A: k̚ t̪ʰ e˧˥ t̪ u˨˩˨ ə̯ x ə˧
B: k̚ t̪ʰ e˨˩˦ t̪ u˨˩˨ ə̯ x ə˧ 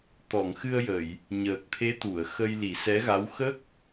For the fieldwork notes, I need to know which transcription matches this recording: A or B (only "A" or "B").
A